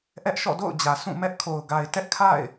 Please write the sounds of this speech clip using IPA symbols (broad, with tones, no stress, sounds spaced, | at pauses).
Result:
ʔ ɛ˦ ʔ ʃ ɔ̰˦˨ d o̰˦˨ ʊ̯ d͡ʑ ä˨ s ũ˦˨ m ɛ˦ ʔ kʰ o˨ ʊ̯ ɡ a˨ ɪ̯ t ɛ˦ ʔ kʰ a̰˦˨ ɪ̯